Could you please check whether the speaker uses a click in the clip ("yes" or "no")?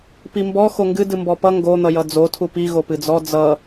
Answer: no